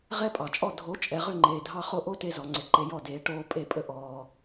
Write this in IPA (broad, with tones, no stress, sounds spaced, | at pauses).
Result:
ʁ ɛ˦ pʼ ɑ˨ t͡ʃʼ ɔ˦˨ dʱ o˨˦ t͡ʃʼ ɛ˨ ʁ ʏ˦˨ ŋ͡ǃ eː˨ dʱ ɑ˧ χ o˧ ʔ o˦ t e˧ z ɔ˨ ŋ͡ǀ ɪ˨ ǃ e˧ j ɔ˦˨ d eː˨˦ ʈ oː˧ pʼ e˦˨ pʼ ə˦ ʔ ɔː˧